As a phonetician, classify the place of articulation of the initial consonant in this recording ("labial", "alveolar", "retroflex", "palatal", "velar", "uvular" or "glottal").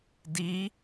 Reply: alveolar